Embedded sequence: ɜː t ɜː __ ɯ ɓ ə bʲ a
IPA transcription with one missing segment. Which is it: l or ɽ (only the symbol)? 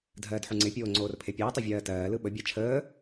l